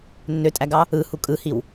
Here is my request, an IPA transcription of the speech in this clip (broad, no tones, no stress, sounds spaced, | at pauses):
nː ø tʼ æ ɡ ɑ | ɯ h u kʼ ɯ h i w